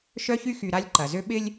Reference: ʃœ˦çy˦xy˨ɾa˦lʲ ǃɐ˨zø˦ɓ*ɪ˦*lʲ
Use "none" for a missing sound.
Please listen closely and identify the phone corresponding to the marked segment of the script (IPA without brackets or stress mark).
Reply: ɪ˦